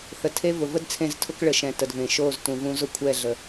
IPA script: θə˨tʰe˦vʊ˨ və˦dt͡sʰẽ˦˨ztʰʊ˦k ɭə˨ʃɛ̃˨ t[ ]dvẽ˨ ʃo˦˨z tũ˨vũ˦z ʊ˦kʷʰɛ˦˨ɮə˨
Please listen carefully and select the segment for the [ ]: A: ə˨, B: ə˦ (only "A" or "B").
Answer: A